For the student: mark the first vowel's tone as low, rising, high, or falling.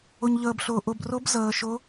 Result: low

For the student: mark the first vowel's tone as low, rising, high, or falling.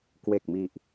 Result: low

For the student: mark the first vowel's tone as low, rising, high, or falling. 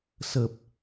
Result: low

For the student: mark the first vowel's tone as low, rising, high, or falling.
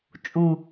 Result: low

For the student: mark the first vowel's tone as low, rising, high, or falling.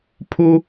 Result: high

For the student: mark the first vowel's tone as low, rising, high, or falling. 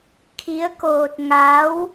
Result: rising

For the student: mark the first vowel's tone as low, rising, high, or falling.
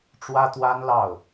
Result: high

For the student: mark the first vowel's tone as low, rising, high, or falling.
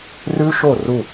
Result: high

